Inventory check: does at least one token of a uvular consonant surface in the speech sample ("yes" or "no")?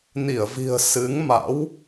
no